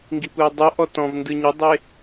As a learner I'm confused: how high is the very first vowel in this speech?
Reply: high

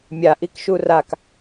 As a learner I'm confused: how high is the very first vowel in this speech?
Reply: low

